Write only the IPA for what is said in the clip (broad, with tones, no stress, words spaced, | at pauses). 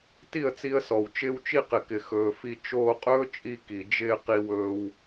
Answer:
ti˦˨ə̯t͡si˧ə̯sɔ˨w t͡ʃɪː˧wt͡ʃi˧qɪ˨kɪ˨ xɵː˧fi˦ t͡ʃoː˧qʼɵː˦t͡ʃʼi˧ ki˨d͡ʒɪː˧ qi˧wɵː˧w